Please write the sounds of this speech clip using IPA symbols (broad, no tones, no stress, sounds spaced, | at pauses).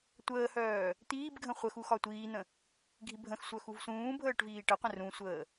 tʷ əː h œː | t̪ iː b ɡʱ ə̃ χʷ ə x u x ɒ tʷ iː n̪ ə̃ | ɡʱ i bʱ ə̃ x sʷ œ x u v s ũː bʱ əː ʈ v iː ʈ ə qʷ ə̃ r ũ sʷ əː